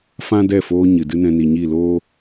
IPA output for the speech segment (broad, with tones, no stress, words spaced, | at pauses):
fã˦dɛ˦˨foː˧ ɲɨ˨dɨ˦nɛ̃˧ ni˨ɲi˦˨ loː˦